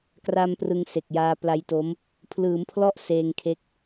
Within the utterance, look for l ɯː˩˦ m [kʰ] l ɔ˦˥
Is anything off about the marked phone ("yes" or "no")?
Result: yes